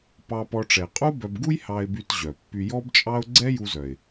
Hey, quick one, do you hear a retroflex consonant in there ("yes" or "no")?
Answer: yes